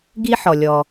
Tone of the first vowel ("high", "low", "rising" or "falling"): high